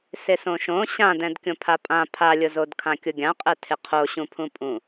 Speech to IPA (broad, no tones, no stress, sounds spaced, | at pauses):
s ɪ s õ ʃ õ ɕ ã d ɛ̃ d kʲ õ pʰ a pʼ ã pʰ a lʲ ʊ z o d kʰ ã kʲ ʊ ɡʲ ã qʼ ɛ tʰ ɪ qʰ o ɕ ũ pʰ ũ pʼ ũ